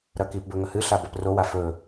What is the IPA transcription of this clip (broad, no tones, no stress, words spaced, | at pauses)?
ɾɐkipbɵ ŋɐhɨɬa bɐprowa fɵ